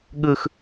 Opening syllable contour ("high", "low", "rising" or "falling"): high